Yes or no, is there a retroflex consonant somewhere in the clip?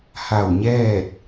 no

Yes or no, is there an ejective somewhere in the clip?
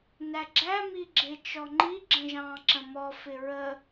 no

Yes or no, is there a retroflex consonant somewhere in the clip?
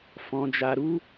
no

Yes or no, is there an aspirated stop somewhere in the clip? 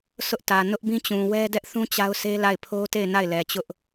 yes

